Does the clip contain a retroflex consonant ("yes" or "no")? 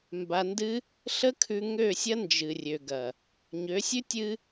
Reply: no